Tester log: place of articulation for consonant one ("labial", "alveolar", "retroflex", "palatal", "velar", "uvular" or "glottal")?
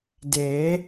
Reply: alveolar